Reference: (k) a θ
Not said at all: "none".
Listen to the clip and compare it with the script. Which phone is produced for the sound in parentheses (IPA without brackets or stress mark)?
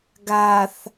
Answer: ɡ